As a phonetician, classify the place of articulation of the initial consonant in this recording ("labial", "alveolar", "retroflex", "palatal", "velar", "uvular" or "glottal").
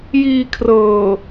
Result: palatal